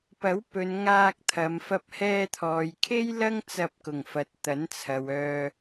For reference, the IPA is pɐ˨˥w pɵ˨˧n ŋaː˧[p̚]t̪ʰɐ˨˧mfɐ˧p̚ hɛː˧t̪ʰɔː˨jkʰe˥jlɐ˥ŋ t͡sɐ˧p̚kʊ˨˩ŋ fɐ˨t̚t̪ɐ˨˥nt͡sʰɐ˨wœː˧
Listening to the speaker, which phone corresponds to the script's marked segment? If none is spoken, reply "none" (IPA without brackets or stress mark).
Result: k̚